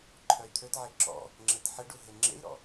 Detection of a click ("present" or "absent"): present